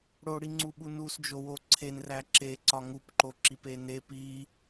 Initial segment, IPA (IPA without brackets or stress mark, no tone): ɽ